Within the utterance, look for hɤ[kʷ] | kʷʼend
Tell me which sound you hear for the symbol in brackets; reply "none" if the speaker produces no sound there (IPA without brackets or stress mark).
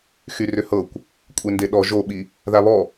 kʷ